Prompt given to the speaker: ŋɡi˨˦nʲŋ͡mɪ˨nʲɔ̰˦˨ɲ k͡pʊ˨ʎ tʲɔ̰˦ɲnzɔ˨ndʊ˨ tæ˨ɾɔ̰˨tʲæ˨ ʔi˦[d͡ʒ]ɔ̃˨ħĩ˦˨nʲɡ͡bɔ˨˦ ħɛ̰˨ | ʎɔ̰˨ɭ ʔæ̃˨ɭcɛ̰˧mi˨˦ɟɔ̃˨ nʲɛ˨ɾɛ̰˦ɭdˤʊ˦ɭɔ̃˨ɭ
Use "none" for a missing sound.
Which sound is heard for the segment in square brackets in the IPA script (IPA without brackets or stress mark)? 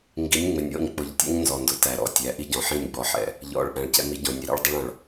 ɟ